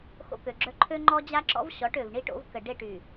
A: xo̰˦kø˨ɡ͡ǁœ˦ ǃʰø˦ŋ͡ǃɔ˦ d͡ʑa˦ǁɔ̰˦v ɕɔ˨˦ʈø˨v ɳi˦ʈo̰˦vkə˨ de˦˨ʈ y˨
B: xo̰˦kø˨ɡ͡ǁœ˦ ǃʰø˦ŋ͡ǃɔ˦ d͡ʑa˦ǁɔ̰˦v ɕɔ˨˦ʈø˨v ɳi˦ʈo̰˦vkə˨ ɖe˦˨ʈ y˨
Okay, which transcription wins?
B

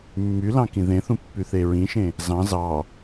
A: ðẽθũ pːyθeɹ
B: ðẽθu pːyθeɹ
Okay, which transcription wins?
A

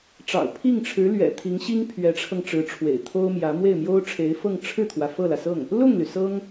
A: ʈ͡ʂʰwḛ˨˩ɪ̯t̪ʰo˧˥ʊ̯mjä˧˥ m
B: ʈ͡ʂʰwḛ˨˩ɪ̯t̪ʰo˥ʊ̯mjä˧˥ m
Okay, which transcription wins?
B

